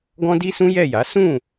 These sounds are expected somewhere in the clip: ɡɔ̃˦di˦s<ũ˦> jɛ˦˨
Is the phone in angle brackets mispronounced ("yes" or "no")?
no